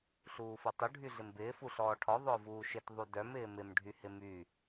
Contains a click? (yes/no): no